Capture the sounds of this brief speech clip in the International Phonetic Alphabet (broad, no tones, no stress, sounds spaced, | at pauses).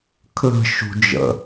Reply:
kʰ l ə̤ ʃ ṳ d͡ʒ ə̰